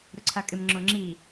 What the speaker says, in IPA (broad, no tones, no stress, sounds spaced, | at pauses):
ɾ ʊ ǀʰ a kʼ ɪ m ŋ͡ǁ o ŋ͡ǁ i